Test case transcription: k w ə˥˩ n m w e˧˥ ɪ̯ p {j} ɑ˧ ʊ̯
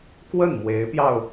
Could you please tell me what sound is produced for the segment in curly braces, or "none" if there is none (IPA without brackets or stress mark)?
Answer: j